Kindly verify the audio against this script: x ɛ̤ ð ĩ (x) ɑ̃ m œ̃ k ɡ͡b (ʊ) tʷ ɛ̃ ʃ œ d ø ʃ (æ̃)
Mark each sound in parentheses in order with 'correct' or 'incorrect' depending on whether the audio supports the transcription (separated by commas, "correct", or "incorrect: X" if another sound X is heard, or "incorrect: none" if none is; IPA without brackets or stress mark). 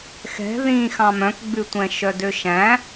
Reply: correct, incorrect: ʉ, correct